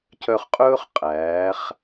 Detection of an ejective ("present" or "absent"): present